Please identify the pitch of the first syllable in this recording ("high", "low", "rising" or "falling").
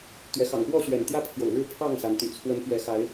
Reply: rising